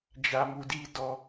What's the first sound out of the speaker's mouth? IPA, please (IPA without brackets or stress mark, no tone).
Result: d͡ʒ